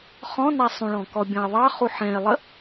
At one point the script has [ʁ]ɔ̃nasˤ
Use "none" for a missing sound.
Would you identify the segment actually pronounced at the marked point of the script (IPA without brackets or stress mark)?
χ